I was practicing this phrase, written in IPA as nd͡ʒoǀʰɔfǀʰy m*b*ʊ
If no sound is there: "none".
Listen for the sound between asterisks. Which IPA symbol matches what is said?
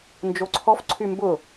b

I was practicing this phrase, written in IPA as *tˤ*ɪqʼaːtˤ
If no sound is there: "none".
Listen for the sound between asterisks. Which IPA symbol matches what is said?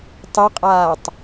tˤ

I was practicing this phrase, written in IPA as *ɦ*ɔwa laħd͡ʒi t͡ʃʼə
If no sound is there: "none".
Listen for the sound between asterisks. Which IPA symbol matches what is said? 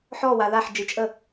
ħ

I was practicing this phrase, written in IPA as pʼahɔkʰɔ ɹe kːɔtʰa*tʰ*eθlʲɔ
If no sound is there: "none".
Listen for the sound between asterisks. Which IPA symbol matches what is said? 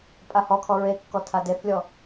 d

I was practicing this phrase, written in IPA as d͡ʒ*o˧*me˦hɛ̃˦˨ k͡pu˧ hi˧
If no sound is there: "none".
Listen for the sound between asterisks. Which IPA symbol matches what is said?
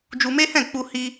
u˧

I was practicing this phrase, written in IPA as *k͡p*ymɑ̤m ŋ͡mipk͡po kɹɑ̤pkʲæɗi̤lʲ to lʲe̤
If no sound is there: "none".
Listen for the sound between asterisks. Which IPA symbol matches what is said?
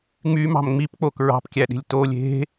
ŋ͡m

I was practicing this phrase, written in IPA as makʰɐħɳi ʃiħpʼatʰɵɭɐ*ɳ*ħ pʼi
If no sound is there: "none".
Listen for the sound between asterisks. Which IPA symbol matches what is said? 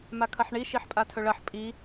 none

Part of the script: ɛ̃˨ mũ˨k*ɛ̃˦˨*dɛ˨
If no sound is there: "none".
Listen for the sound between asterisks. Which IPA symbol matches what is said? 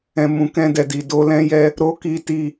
ɛ̃˧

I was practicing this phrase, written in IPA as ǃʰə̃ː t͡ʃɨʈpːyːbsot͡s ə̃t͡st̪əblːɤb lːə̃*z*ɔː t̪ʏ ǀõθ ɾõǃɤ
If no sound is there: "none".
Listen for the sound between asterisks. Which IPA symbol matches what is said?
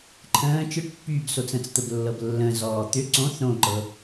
z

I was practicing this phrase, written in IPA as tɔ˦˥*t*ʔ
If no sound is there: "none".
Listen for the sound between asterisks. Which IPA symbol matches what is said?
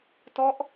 none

